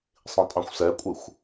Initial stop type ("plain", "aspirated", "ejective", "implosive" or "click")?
ejective